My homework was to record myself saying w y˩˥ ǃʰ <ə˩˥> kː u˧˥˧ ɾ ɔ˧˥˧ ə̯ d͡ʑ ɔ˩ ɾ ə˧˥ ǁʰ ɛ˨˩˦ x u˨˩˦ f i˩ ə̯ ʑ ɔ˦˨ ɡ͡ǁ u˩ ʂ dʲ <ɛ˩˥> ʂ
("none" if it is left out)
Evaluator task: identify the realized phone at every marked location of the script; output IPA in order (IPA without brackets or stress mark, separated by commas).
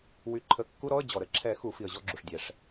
ə˩˥, ɛ˩